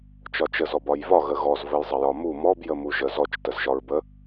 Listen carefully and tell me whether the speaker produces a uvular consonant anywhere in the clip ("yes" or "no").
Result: no